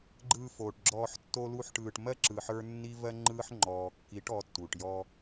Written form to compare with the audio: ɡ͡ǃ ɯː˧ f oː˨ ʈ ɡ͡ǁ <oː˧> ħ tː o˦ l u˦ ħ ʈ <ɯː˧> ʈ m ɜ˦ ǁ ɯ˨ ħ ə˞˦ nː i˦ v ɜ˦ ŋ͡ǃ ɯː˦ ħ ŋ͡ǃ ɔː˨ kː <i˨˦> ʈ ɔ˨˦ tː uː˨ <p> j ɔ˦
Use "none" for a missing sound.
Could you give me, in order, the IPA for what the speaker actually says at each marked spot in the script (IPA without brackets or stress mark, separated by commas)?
ɔː˧, ɯː˧, i˨˦, ʈ